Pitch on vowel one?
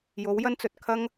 rising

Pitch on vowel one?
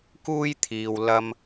high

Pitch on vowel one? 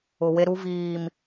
low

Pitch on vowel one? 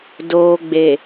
low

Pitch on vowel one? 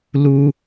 high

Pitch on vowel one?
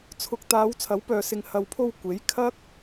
low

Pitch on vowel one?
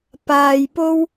low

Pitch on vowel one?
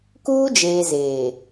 high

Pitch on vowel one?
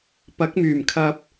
rising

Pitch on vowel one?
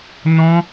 high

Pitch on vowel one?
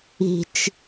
low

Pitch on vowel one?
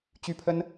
high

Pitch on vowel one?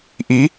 rising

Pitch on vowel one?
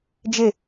falling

